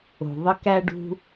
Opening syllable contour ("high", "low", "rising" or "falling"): low